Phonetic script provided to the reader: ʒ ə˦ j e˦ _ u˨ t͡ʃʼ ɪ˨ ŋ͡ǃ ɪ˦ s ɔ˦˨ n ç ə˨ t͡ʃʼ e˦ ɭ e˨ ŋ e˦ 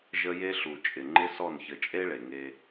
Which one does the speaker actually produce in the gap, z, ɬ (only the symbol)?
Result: ɬ